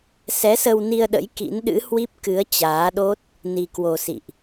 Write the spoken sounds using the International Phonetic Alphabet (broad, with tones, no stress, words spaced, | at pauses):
sɛ˨˦sə˧wni˧ə̯ɗə̰˧˥j kḭ˧˥nɗɨ̰˧˥ hwi˦˥p̚ kɨ˨˦ə̯ t͡ɕaː˨˦ɗo˦˥t̚ | ni˧kwo˧ sḭ˧˨ʔ